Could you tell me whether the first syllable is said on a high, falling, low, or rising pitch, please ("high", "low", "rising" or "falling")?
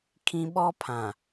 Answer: high